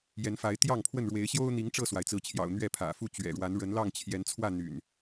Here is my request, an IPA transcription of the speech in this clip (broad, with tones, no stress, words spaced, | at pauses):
jɛ˨˦nfa˨˦ɪ̯t̪jɑ˥˨ŋpʰwə˥˨n ɻwe˨˦ɪ̯ɕjo˦ʊ̯n̪i˨˦ŋ ʈ͡ʂɤ˥˨swa˩ɪ̯t͡sɹ̩˨˦t͡ɕʰjɑ̰˨˩ʊ̯ n̪ɥɛ˥˨pʰä̰˨˩ fu˥˨ t͡ɕɥɛ̰˨˩ɻwa˨˦n ɻə˨˦nlɑ˥˨ŋ t͡ɕʰjɛ˨˦nt͡sʰwä˥˨ n̪y̰˨˩n